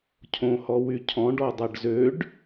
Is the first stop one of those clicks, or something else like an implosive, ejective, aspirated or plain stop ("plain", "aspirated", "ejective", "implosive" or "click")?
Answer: aspirated